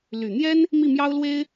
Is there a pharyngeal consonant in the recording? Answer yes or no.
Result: no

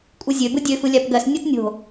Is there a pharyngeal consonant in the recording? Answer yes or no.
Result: no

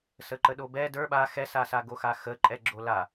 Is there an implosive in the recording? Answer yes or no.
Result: yes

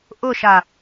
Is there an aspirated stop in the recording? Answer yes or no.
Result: no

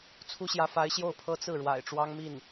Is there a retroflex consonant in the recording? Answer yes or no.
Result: yes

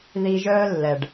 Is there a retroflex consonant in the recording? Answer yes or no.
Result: yes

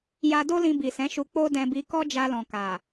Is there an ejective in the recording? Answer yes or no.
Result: no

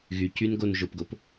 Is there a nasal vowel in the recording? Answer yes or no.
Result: no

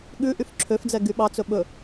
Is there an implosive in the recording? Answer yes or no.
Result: yes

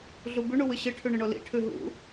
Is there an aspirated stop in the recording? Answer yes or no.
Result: yes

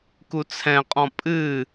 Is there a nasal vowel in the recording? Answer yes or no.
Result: yes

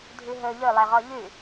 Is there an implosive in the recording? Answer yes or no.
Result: no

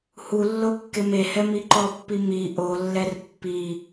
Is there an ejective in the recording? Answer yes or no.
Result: no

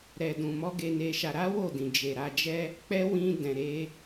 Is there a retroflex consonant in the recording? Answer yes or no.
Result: no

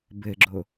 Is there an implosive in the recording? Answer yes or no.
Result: no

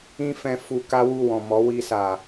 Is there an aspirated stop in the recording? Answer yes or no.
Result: no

